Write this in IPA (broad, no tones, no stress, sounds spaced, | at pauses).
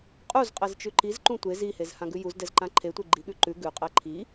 qʼ u z qʼ ɛ z t͡ʃ ʉ ǃ i z ǃ ũ tʷ e z i h e z h ã ɡ ʉ j u z d ɛ z ǃ ã ǃʰ e tʷ e ɡ͡ǃ i ɠ ʉ ǃ ʉ ɡ ʉ qʼ ɛ ǃʰ i